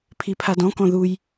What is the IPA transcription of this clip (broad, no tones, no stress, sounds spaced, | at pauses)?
pʰ i pʰ a d ɔ̃ k ɔ̃ ð u j